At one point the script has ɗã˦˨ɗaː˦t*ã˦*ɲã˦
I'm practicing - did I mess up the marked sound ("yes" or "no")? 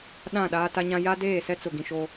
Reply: yes